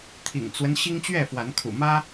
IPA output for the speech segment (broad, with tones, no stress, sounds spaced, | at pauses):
t̪ʰ ḭ˨˩ ŋ t͡s w ə˦ n ɕ i˦ ŋ t͡ɕ ɥ ɛ˥˨ f w a˨˦ n kʰ ṵ˨˩ m ä˦